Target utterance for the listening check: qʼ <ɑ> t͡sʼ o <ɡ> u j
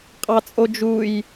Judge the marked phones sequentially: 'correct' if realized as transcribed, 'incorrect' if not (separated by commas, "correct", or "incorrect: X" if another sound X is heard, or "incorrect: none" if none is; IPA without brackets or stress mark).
correct, incorrect: d͡ʒ